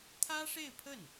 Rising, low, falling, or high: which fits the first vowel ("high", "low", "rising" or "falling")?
high